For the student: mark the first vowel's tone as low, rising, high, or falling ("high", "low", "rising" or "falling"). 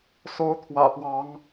rising